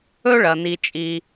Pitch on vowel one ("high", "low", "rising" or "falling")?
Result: high